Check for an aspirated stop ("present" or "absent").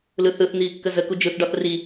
absent